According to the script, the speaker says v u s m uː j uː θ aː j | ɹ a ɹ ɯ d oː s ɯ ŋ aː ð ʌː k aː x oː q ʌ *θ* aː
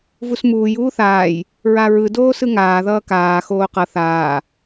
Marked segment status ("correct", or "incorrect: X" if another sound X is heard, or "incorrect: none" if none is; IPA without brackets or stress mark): correct